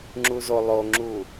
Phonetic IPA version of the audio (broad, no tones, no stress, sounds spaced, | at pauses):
ŋ͡ǁ u z o lˠ o ŋ͡ǁ u